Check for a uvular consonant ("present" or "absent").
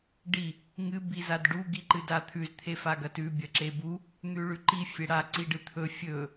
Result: absent